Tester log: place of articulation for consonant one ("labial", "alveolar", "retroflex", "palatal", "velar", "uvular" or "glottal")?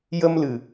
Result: palatal